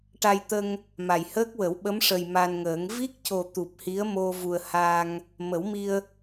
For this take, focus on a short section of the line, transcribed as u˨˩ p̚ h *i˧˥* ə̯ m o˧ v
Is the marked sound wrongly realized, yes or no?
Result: no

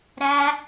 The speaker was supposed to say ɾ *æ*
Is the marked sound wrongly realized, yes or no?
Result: no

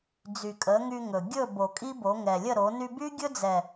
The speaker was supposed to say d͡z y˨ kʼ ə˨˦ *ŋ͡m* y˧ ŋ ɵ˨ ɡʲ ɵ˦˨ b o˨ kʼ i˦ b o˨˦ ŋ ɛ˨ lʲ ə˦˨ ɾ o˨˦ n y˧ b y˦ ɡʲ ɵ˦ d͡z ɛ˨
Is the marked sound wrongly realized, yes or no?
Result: yes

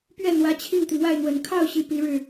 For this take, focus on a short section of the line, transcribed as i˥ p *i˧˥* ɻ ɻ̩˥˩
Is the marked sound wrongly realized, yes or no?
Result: no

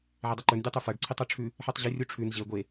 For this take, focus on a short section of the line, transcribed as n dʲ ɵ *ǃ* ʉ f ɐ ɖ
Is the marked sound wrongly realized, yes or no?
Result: yes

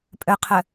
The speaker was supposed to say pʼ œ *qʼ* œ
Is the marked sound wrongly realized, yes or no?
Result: yes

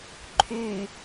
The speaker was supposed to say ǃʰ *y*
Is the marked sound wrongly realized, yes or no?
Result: no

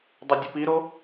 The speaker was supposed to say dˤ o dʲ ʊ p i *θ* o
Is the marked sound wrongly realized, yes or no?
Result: yes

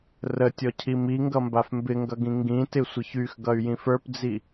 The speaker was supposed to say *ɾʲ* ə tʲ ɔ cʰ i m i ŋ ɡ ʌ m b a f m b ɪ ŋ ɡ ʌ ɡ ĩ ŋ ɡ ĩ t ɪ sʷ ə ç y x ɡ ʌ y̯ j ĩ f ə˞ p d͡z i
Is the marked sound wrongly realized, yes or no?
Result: yes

